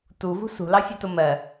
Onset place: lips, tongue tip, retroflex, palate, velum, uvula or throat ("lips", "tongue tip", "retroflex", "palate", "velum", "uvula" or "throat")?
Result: tongue tip